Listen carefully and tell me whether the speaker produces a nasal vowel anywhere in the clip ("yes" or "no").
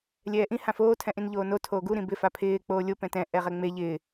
yes